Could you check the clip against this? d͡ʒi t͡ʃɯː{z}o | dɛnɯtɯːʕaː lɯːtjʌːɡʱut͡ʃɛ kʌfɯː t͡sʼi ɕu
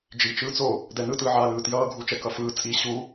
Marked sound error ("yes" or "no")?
yes